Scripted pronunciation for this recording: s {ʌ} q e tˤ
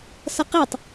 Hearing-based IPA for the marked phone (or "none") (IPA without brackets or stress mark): ʌ